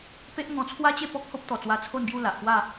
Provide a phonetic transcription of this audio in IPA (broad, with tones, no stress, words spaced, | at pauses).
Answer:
pe˦ʔŋɔ̃˧t͡sʰwa˦t͡ɕe˥˧ pɔ˦k̚ho˦p̚t̪ɔ˨˩t͡swa˧ t͡sʰo˥˧nɡju˥˧ la˨ʔ pwa˥˧